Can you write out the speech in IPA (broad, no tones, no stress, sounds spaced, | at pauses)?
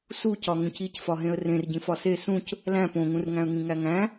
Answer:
s u c ɒ ŋ ũ c i c f ɒ ɦ ẽ ə̯ r ẽ r ɟ ĩ f ɒ s e s ũ c | l æ̃ p õ ŋ ũ r ŋ æ̃ ə̯ ŋ ĩ ŋ æ ŋ æ̃